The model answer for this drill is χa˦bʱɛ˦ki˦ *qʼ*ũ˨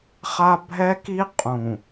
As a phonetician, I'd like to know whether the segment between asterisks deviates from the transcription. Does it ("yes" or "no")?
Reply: no